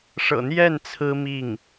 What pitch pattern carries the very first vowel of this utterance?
low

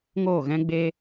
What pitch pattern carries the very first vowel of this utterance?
falling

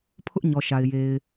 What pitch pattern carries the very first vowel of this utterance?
high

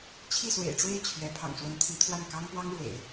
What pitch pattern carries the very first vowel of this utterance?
falling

